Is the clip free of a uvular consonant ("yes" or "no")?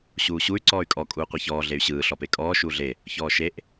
no